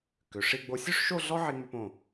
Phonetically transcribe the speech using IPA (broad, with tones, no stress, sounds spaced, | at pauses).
k ʏ˩˧ ʂ i˥˧ ɡ͡b o˧ sʲ ø˥ ʂ ʃ o˥˧ ɮ ɔ˥ ʕ i˧ ŋ͡m ʏ˧ p õ˧˩